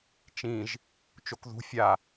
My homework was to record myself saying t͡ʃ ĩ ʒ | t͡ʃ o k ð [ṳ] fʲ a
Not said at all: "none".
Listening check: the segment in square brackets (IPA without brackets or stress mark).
ṳ